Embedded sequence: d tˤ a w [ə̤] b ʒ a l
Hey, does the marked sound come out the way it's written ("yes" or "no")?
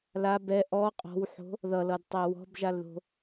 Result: no